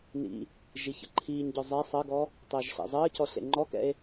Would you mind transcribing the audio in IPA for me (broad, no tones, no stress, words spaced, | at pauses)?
nḭ | ʒiçə̰ǃʰiːɲɟɔ zˤɛ sˤʌɡɔ | tˤəːʒɬɛ̰zˤəːcɔ ɬḛŋ͡ǃɔkɛ̰e̯